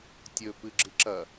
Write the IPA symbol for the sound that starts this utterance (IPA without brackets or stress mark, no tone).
tʲ